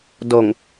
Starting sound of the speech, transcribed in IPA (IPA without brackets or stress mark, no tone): d